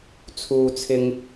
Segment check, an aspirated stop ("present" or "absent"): present